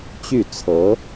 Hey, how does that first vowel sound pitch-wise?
falling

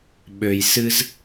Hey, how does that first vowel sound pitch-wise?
low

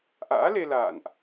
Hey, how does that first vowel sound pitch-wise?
rising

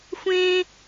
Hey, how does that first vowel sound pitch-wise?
high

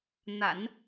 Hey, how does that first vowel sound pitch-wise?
low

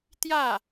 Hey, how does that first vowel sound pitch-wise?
falling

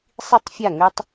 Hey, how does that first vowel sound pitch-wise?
high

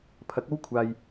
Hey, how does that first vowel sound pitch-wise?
rising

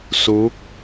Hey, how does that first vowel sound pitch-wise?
rising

